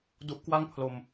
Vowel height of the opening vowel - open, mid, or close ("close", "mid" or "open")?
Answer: close